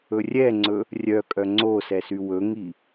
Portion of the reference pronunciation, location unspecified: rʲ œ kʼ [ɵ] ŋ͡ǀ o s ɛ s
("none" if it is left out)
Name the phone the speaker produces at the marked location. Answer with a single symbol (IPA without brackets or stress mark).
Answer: œ